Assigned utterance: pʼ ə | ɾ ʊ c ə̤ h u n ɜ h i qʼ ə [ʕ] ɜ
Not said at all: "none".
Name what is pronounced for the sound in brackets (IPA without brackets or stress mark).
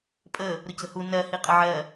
ʕ